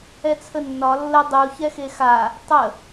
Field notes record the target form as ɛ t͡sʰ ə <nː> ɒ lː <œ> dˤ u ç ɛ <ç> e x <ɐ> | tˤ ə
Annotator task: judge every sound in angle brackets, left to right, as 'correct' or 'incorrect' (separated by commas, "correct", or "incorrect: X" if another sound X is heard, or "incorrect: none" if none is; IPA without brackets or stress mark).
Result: correct, incorrect: ə, incorrect: x, incorrect: a